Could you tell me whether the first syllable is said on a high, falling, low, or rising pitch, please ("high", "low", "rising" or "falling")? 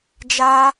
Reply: high